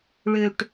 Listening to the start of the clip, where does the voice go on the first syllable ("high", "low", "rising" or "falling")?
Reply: low